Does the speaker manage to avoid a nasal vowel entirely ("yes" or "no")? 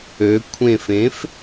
no